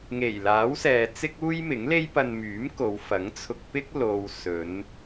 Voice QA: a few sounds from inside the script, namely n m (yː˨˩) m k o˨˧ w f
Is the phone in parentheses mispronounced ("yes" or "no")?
yes